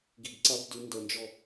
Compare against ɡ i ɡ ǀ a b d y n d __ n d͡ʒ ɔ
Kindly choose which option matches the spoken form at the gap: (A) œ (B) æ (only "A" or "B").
A